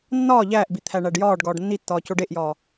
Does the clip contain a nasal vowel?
no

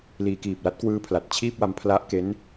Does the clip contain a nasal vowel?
no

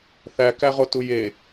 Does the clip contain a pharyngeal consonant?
no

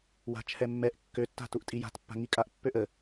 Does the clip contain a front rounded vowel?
yes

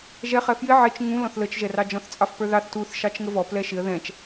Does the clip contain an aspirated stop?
no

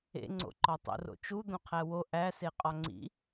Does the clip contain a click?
yes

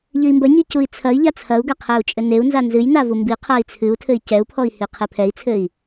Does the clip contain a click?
no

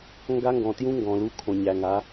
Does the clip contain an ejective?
no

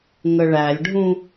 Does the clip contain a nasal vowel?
yes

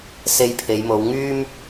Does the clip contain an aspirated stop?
yes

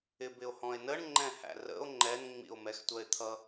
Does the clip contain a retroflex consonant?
yes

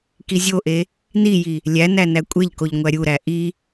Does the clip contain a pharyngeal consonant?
no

